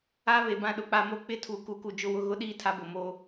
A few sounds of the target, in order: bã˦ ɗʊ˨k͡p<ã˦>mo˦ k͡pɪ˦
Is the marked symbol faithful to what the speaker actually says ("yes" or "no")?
no